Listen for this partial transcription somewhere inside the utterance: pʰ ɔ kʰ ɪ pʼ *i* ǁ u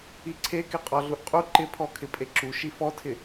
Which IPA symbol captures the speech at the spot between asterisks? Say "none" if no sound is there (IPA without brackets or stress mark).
e